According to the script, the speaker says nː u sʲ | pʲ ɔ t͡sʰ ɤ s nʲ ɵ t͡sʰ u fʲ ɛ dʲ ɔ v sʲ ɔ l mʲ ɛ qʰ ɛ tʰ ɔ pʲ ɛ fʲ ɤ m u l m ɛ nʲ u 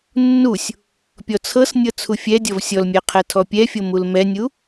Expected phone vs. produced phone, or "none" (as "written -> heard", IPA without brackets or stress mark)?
ɵ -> ɤ